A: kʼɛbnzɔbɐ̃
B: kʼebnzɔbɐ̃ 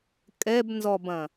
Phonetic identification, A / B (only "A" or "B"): A